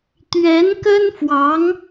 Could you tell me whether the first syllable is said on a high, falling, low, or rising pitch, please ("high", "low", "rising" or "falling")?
rising